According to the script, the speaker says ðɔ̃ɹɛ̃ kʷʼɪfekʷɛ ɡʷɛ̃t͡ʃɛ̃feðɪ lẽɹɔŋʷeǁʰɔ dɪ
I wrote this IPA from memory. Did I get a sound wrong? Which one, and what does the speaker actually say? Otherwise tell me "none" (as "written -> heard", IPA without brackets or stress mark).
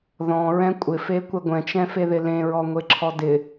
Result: none